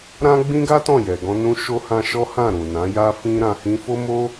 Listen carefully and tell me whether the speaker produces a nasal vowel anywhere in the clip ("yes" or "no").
yes